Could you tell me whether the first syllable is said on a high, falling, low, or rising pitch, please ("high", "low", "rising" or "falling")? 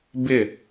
falling